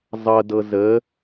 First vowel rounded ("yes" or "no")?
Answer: no